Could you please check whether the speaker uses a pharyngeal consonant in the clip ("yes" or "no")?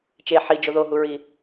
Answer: yes